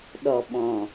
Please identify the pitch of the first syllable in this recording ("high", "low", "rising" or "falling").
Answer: low